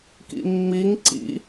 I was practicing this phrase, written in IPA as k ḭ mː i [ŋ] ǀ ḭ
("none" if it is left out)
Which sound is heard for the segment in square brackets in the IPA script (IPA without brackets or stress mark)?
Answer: ŋ